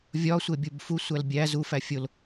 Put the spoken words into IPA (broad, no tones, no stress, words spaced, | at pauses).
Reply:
vʲɒsʷe bʲubfusʷæl bʲæ zufæ fʲol